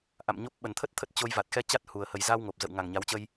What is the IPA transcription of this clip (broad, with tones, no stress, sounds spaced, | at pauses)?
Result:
ʔ a̰˧˨ m ɲ o˦˥ p̚ ɓ ə˨˩ n t̪ʰ ə˦˥ t̚ t̪ʰ ə˦˥ t̚ t͡ɕ o˧ j v a˨˩ t̚ x ɛ˧ t͡ɕ a˦˥ t̚ h u˨˩ ə̯ h ə˨˩ j z a˧ w ŋ o˨˩ p̚ z ə̰˧˨ w ŋ a˨˩ ŋ ɲ a˨˦ w t͡ɕ ə˧ j